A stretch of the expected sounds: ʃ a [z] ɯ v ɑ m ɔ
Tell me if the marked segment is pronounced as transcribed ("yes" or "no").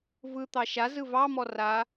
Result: yes